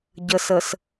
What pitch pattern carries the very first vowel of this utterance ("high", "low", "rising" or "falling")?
low